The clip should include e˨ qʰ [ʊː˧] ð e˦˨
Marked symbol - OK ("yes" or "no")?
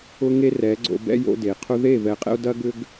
no